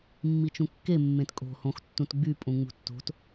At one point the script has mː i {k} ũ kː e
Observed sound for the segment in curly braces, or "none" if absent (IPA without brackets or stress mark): t͡ʃ